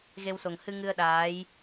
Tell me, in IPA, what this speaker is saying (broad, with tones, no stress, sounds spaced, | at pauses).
ɣ e˧ w s o˨˩ ŋ h ɨ˧ ŋ ɨ˧ ə̯ ɗ aː˧˥ j